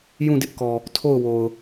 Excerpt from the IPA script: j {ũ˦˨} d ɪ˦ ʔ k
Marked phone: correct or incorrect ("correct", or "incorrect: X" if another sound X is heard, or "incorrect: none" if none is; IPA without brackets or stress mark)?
correct